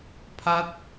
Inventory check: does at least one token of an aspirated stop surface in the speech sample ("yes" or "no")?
yes